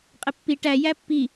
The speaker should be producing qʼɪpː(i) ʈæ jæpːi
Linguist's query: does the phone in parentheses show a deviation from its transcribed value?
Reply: no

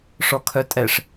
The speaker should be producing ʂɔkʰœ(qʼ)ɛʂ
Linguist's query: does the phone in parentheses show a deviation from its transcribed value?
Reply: yes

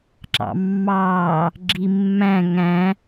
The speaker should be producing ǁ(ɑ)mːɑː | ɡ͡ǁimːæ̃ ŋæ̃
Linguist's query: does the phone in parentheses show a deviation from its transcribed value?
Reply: yes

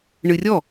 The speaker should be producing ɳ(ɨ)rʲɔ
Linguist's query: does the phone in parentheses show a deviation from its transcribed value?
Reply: no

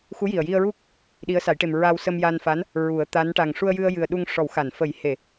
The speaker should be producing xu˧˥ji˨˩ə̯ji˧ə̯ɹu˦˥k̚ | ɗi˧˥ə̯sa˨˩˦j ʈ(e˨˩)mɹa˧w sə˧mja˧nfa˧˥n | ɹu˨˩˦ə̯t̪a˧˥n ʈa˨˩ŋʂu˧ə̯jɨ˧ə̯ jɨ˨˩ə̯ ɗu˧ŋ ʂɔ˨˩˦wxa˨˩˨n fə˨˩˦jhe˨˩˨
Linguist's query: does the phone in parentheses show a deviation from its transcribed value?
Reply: no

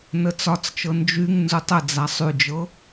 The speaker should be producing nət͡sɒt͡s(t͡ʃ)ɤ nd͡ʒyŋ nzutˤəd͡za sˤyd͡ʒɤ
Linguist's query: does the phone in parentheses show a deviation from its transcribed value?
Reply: no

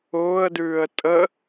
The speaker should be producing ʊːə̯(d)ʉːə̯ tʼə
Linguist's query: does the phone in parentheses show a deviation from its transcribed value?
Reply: no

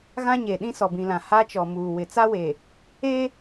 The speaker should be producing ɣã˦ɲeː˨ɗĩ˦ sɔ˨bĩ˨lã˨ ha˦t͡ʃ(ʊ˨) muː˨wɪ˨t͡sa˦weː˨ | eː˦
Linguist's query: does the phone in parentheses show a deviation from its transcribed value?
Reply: yes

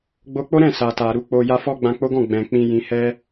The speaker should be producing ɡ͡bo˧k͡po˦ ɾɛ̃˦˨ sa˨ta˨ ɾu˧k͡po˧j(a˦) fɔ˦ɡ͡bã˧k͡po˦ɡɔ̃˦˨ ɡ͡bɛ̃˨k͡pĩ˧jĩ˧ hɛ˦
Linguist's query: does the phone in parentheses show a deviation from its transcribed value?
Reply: no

